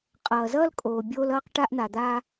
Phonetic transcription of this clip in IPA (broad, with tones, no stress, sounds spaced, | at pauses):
qʼ ʌː˩ z ʌː˥ l kʼ oː˩ bʲ oː˥ l ʌː˥ q ʈ a˥ ʔ n̪ a˩ d̪ a˥